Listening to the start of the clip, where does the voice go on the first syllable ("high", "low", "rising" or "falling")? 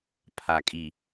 low